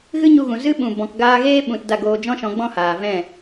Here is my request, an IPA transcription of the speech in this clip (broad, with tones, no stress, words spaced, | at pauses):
ɣɨ˦ɲu˧ɣũ˨ zɨ˦ɓũ˨ bɔ̃˨kɡaː˧ɣeː˦ ɓũ˨t da˦˨ɡoː˧d͡ʒɔ̃˦ʃɔ̃˨˦ ɡ͡bɔ̃˦haː˨ vɛ̃˦˨